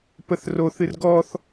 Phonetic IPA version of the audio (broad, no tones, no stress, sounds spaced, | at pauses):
p ə θ r o θ ɨ r ɡ ɔ θ